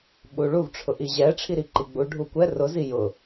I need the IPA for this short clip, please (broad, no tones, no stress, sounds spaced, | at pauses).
ɓ u ɭ u v ʈ͡ʂʰ ʊ ʔ i ʑ ɛ ʈ͡ʂʰ i ɾ i ǃ i ɡ͡b u ɖʱ u kʷ ɛ r ʊ z i j ʊ